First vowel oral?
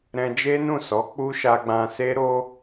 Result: no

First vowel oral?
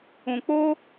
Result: no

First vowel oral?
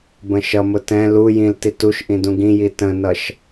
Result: no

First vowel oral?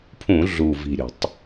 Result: no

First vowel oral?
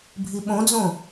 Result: yes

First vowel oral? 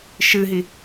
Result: yes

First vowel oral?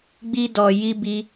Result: yes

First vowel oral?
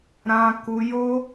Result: no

